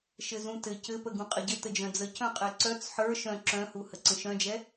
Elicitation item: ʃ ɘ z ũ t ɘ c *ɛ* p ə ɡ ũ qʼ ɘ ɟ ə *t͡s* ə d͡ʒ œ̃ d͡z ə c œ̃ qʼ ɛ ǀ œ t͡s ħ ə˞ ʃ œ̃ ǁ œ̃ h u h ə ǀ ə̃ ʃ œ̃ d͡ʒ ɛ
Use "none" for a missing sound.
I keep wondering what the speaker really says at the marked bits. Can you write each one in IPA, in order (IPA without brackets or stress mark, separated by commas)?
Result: ɘ, t